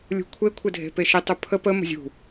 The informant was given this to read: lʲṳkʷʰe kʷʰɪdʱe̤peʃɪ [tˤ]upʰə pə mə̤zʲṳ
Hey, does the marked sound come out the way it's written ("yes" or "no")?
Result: yes